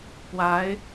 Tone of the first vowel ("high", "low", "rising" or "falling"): rising